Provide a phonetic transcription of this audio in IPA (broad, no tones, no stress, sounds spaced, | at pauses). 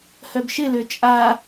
h œ b ʃ ɪ l ø t͡ʃʼ a